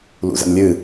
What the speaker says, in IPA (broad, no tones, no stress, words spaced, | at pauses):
lṵzə̰nlʲɨ